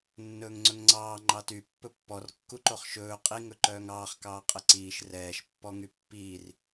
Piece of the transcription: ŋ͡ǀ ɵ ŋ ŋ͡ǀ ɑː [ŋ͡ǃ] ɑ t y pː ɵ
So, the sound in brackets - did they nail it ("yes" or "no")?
yes